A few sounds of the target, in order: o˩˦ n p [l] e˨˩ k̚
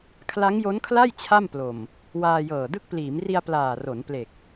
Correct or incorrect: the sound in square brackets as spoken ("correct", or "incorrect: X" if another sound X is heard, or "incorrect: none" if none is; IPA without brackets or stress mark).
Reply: correct